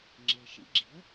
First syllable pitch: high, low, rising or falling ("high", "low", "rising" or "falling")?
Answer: low